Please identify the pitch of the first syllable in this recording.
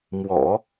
low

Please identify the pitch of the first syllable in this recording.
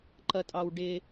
high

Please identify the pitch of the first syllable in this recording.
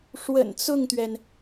low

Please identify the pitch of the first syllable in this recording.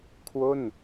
falling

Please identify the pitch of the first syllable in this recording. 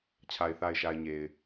low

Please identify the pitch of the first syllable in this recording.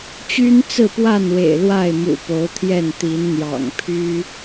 high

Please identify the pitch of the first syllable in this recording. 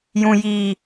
low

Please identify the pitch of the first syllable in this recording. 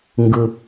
high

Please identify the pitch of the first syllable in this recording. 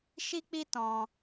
high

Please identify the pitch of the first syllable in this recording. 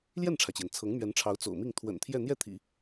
falling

